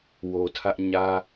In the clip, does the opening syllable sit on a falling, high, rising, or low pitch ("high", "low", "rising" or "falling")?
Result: low